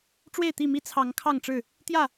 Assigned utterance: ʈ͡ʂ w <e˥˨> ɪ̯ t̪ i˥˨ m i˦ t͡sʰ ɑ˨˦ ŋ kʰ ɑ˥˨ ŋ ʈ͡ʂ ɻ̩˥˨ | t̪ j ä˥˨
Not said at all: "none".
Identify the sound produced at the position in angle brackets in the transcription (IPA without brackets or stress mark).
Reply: e˥˨